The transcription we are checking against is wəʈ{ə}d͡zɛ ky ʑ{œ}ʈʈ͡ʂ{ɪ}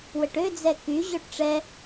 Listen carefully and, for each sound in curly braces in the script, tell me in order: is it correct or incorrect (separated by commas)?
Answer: incorrect, correct, incorrect